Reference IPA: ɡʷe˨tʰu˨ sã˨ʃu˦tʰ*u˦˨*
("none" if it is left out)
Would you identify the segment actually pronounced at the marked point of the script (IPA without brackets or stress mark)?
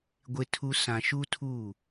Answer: u˦˨